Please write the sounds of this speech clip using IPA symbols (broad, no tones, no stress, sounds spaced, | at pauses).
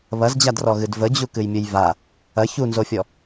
β ɐ z d͡ʑ a d r ɔ ɣ ɨ d v ə d͡ʑ u k ɨ j mʲ ɨ j v a | ɐ ç u n z o fʲ ɔ